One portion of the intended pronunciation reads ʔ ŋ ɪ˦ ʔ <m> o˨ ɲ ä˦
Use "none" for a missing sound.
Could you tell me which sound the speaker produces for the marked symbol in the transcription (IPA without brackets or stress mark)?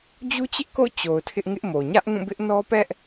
m